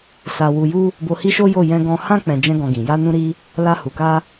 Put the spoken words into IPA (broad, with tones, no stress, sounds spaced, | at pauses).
s a˧ w u˧ j u˦ | b o˧ h i˦ ʃ o˦ j o˦˨ j ɛ̃˧ ɡ ɔ̃˧ h ã˦ k͡p ɛ̃˧ d͡ʒ ɛ̃˦ ɡ ɔ̃˧ ɡ ĩ˨ j a˧ n ũ˧ ɾ i˧ | l a˧ h u˨ k a˧